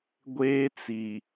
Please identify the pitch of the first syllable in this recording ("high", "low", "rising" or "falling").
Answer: high